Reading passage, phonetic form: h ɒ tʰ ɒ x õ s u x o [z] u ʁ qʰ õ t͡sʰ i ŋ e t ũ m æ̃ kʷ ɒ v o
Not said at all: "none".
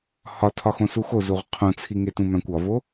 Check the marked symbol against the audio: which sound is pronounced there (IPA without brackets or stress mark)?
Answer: z